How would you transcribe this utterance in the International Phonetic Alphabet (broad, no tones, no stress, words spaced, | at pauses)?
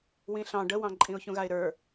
wĩɬɑ̃ ɖəwɑ̃ ǃʼĩʊ̯çũɣaɪ̯ɾə˞